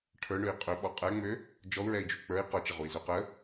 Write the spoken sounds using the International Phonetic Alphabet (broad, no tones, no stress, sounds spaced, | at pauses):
ʈʰ ə˞ ɳ ø i̯ qʼ ø ɓ ɔ qʼ ɛ ŋ͡m ø | d͡ʒ ɔ u̯ ɹ ɛ i̯ d͡ʒ u k͡p ə˞ i̯ q ɔ t͡ʃ ə ʁ u i̯ z ø q ə